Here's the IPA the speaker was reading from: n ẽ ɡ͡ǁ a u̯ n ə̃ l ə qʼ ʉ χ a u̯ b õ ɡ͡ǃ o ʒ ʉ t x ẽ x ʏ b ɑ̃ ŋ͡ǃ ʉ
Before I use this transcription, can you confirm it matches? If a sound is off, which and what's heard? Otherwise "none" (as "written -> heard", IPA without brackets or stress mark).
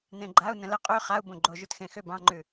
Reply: ɡ͡ǁ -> ɡ͡ǃ